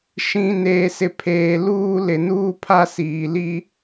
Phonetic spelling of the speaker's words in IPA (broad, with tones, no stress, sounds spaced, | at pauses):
ʃ ĩ˨ n eː˨ s ɪ˨ pʰ eː˨ l uː˦ l ɪ˨ n uː˦ pʰ a˦ s iː˨ l i˦